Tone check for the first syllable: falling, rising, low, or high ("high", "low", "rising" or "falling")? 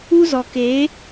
high